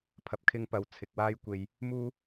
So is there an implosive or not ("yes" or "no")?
no